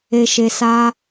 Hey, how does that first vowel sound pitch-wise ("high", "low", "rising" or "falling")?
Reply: low